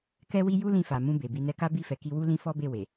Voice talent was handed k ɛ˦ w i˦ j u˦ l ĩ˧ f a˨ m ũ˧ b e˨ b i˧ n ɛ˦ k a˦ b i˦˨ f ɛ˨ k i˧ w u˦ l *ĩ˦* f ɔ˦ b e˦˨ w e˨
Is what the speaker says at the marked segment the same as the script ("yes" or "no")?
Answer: yes